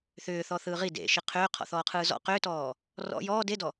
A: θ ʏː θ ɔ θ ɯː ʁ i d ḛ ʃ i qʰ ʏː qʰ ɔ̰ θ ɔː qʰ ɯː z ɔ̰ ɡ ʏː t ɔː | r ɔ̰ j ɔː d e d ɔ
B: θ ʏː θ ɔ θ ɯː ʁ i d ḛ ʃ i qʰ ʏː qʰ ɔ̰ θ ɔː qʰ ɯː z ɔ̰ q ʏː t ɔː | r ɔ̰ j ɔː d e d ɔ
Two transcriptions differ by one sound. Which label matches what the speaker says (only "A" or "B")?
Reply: B